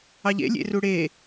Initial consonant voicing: voiced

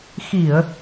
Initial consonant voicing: voiceless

